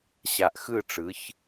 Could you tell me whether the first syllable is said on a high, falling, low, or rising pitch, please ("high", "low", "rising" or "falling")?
low